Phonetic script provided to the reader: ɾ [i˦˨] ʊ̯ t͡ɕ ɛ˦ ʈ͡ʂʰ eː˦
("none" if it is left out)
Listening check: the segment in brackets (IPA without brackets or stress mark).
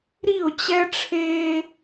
i˦˨